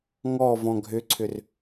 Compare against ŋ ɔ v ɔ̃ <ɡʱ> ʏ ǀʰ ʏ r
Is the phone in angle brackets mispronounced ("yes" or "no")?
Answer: no